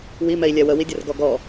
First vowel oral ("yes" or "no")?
yes